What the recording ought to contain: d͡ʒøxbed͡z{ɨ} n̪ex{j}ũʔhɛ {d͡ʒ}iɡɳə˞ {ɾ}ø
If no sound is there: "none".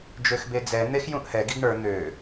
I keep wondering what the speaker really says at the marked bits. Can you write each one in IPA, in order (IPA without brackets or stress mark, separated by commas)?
ɛ, j, ɡ, n̪